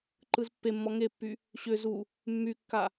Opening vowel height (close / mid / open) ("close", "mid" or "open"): close